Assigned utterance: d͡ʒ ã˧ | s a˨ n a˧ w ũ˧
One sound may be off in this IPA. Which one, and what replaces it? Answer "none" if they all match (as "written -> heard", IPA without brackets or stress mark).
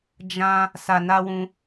none